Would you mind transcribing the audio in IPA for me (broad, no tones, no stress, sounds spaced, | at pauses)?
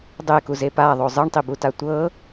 dˤ e k u z e p a ðˤ o zˤ ɯ ɳ tˤ i b u t a tʷ ɤ